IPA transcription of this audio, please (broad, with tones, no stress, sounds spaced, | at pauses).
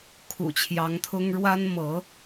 kʰ ṵ˨˩ t͡ɕʰ j ɑ˧˥ ŋ t̪ʰ ʊ˥ ŋ ɻ w a˥ n m ɤ˧˥